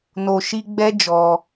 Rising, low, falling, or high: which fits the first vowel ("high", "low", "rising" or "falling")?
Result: low